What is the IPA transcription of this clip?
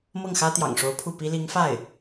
m ɤ˥˩ ŋ x ä˥ t̪ j ɑ̰˨˩ ŋ ʂ o˧˥ ʊ̯ pʰ u˥˩ p i˥ l i˧˥ ŋ f a˥˩ ɪ̯

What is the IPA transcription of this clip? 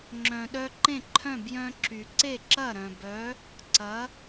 ŋ͡ǁ œ̃˩ ɗ œ˧ ǃ ẽ˥˩ ǃʰ œ̃˥˩ b j œ̃˥ ǁ y˩ ǀ e˥˩ ǁ ɐ˥˩ ɾ œ̃˩ b œ˩˥ | ǀ ɐ˩˥

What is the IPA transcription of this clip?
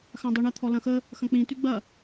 x ã dˤ u ɳ ɐ t̪ʰ ɔ l ɐ̃ x ə | x ɐ̃ k͡p ĩ t y ɡ͡b ɐ

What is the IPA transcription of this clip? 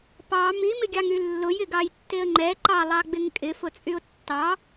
p ɑ m i m ɪ ɡʲ ɑ ŋ y lː ʊ j ɪ ɡ ɑ j tː e ə̯ ŋ͡ǃ ɛ ǃ ɑ lˠ ɑ ɡ͡b ɪ ŋ kʼ ɪ f ʊ t͡sʼ y ʊ̯ tː ɑ

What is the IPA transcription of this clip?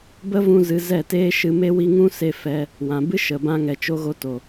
b ə˦ v ũ˧ z ɨ˧ z ɛ˦˨ t eː˦ ʃ ɨ˧ m e˦ w i˦ ŋ ũ˦ s e˧ f ɛ˧ | w ã˨ b ɨ˦ ʃ ə˨ b ã˧ ŋ ɛ˨ t͡ʃ o˧ ɣ o˧ t o˨

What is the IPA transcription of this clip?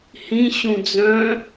h ĩ ɕ ũ d͡z œ̃

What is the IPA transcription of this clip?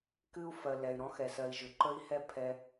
k ɨ˦ u̯ f ɜ˨ l ɛ˨ y̯ ɾ ɔ̃˦ x ɛ˨ s ɜ˧ i̯ ʒ ʏ˨ ǃ ə˦ i̯ h ɛ˦ pʰ ɛ˧

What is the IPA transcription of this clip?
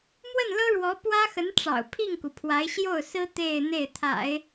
m w ə˥˩ n l ɤ˥ ɻ w ɔ˧˥ p w ä˥ x ə˧˥ n ʈ͡ʂ ɑ̰˨˩ ʊ̯ pʰ i˥˩ ŋ k u˩ pʰ w a˧˥ ɪ̯ ɕ j o˥˩ ʊ̯ s ɹ̩˥ t̪ e˥˧ ɪ̯ n̪ e˥˩ ɪ̯ t̪ʰ a̰˨˩˦ ɪ̯

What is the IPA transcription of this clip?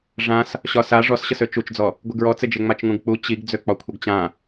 ʐ ã s | ɕ ɒ s a ʐ ɔ s ɕ ə s ø t͡ʃ u t͡ʃ d͡z ɔ | ɡʷ ɨ ɡ ɹ ɔ t͡s ɪ d͡ʒ e ŋ͡m a t͡ʃ ŋ ũ ɡ k͡p u t͡ɕ i ɡ d͡z ø k͡p ɒ kʷʰ ə ɡ t͡ɕ ã

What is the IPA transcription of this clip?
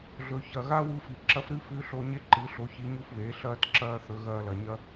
ɮ ɵ˩ ç ɐ˩ ɣ a˥ w u˧ f i˩ ǁ ɐ˧˥ f ɾ ɨ˧˥ f ʉ˧˥ ɬ o˧ ɲ e˥ ǃ ɨ˩˧ ɬ o˩˧ ç i˩˧ ɲ u˧ f β eː˩˧ ɬ ɐː˧ t ǁ ɐː˧ θ ɵ˩˧ ɣ ɐː˧ l ɐ˩ ɲ ɐ˥

